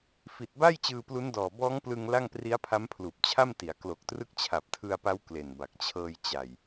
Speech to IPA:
f i˨˩ t̚ b a˥˩ j t͡ɕ ɯː˧ p l u˦˥ n d ɔː˨˩ b ɔː˦˥ ŋ p l ɯ˧ ŋ l a˥˩ ŋ p r i˦˥ a̯ pʰ a˦˥ m pʰ l uː˨˩ p̚ t͡ɕʰ a˥˩ m t i˩˦ a̯ k l o˨˩ k̚ t r ɯ˦˥ k̚ t͡ɕʰ a˨˩ p̚ tʰ ɯ˧ a̯ p a˦˥ w k l e˨˩ n b a˨˩ k̚ t͡ɕʰ ɤː˧ j t͡ɕ a˨˩ j

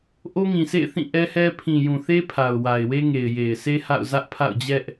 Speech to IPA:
ʔ o˦ ŋ ĩ˨ s ḛ˦˨ ɪ̯ θ ĩ˦˨ ʔ ɛ˦ h ɛ˦ pʰ ĩ˨ j ũ˨ θ e˦ pʰ a˨ ʊ̯ w a˨ ɪ̯ w e˦ ŋ e˨ ɪ̯ j e˨ ɪ̯ s e˦ h a̰˦˨ ʊ̯ z ä˦ ʔ pʰ a̰˦˨ ʊ̯ d͡ʑ ɛ˦ ʔ

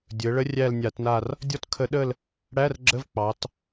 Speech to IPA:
dʲ ɵ˩˧ ə̯ ɭ ə˧˥ rʲ æ˦˨ l nʲ a˧˩˧ t n a˦˨ r | dʲ ɔ˦˨ t kʰ ə˧˩˧ ɗ ə˦˨ l | ɽ æ˧˥˧ r ɡ͡ǁ ə˧˥˧ v k͡p ɑ˩˧ t

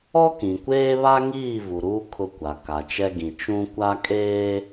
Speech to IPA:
ɔ˦ k ĩ˨ kʷ eː˦ β a˦ ŋ iː˦˨ v u˨ ɾ uː˦ kʰ ʊ˦ kʷ a˨ k a˨ t͡ʃ ɛ˦ ɡ ĩ˨ t͡ʃ ũ˦ kʷ a˦ kʼ eː˦

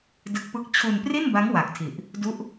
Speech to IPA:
d ɯ˦˥ k̚ p ɯ˥˩ k̚ t͡ɕʰ u˧ n p r i˥˩ n b a˦˥ ŋ w a˨˩ k̚ tʰ i˨˩ ʔ | d u˦˥ ʔ

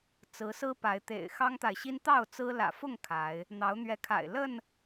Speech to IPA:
t͡s ɹ̩˨˦ s ɹ̩˦ p a˨˦ ɪ̯ t̪ ḛ˨˩ ɪ̯ x ɑ˦ ŋ t̪ a˨ ɪ̯ ɕ i˦ n t̪ ɑ˥˨ ʊ̯ t͡s ɹ̩˦ l ä̰˨˩ f ʊ˥˨ ŋ kʰ a˨˦ ɪ̯ | n̪ ɑ˨˦ ʊ̯ n̪ ɥ ɛ˨˦ kʰ a̰˨˩ ɪ̯ l ə˥˨ n

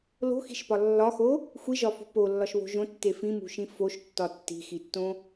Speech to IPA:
l o̤ x i̤ ʃ p ɒ lː ɒ x o | xʷ i ʒ ɒ f ṳ p o lː ɒ ʃ β o̤ ʒ õ tː e f ĩ m ṳ ʃ ĩ f o ʃ tː ɒ tː i̤ x i tː õ

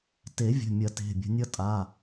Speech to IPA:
t e˨˩˦ vʲ ə̤˩˧˩ mʲ ɐ˨˩˦ t e̤˩˧˩ bʲ ə̤˨˦ nʲ ʌ˦ tʼ a˩˧˩

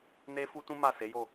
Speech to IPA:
n e˦ f u˦ t ũ˦ m a˦˨ s e˨˦ j o˦˨

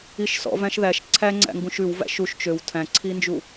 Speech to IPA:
i ʃ s ɔ̰ v æ̃ ʃ ð æ ʃ ǀʰ æ ŋ͡ǀ æ̰ ŋ ɡ ũ ʃ ʉ w v æ̰ ʃ u ʃ t͡ʃ ø w tʰ æ̃ ǀʰ i n d͡ʒ u

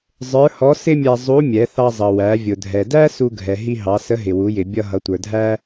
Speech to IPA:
zˤ ə˞˧˥ h ɔ˧˥ s ɪ˥ mʲ æ˧ zˤ u˧˥ mʲ ɛ˩˧ θ ɑ˧ zˤ ʌ˩ w æ˩˧ vʲ ʊ˩ dʱ ɛ˩ d æ˥ s u˧ ɡʱ ɛ˩ ɦ i˧ ɦ ɑ˩˧ s ə˧˥ ɦ ɪ˩ w u˩˧ j ɪ˩ bʲ ʌ˧ ɦ ʌ˩˧ tʷ ə˞˩ dʱ æ˥

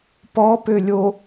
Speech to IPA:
p ɔ p ø lʲ o

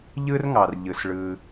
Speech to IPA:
ʎ ɯ˥ r ŋ ɑ˩ r ʎ ɯ˩ s ɭ ɯ˨

